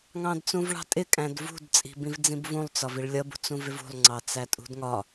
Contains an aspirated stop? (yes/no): no